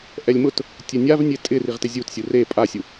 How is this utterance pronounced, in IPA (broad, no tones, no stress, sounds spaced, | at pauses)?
ʔ ɛ lʲ m ʊ t | tʲ ɛ nʲ a v nʲ e tʼ ɪ r i ʁ t ɪ zʲ u t sʲ u r e pʼ a sʲ u